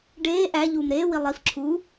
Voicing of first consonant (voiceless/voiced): voiced